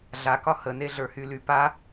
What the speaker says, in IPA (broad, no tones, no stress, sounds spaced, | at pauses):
ɮ a k ɒ h ə n e ɮ ə˞ h y l y p a